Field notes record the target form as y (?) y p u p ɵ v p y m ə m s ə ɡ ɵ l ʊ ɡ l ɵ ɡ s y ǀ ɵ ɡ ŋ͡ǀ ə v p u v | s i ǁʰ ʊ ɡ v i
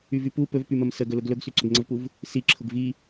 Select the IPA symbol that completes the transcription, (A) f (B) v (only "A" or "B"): B